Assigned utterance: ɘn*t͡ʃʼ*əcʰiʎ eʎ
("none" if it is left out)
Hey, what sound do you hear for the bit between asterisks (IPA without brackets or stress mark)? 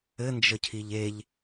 d͡ʒ